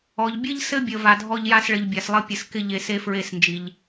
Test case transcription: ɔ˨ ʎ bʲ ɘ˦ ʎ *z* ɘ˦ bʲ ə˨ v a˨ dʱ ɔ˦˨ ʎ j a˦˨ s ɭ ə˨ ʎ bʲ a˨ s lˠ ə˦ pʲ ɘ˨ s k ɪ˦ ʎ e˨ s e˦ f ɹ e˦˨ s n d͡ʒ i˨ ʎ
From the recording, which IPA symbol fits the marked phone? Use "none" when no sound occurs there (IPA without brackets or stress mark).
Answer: s